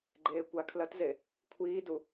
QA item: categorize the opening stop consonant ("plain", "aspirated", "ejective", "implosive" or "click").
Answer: click